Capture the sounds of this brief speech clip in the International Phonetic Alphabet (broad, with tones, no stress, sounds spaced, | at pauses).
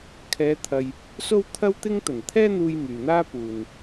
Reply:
kʰ ɛː˨˧ t̪ʰ ɐ˨ j | s o˥ w t̪ʰ ɐ˥ w t̪ ɪ˥ ŋ t̪ ɐ˨˩ n t̪ʰ ɛː˥ n̪ uː˧ j m yː˨ n̪ aː˥ p uː˨ n